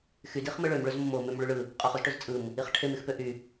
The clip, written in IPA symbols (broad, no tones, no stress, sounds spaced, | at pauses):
x y d i χ m ɯ ɭ ø m ɭ ø z m o m o m ø m ɭ y ɭ ɯ | qʼ o χ u z ʈ ø z t͡sʼ ɯ m | i χ ʈʰ e m y x p ø ʔ y